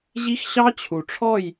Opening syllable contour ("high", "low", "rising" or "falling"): high